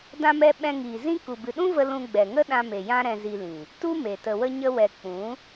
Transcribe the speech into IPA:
d ã˧ m ɛ˧ ɓ ɛ̃˧ ŋ iː˨ z ĩ˦ k u˨ b ɨ˨ ɗ ũ˦ v ə˧ l ũ˧ ɡ͡b ɛ˨ ŋ ə˦ ɗ ã˧ m e˨ j ã˦ ɾ ɛ̃˧ z i˧ l ĩ˨ | t u˦ m e˨ t ə˨ w ə˧ ɲ ə˧ w ɛ˨ k͡p ũ˨˦

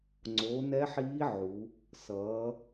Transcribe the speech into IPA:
ŋ͡ǀ o˩˥ n ɛ˧˥ ħ iː˧˥ ʕ u˩˧ | s ʌː˩˧

